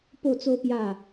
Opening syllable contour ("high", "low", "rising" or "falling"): falling